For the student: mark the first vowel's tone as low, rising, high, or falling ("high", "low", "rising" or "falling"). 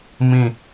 falling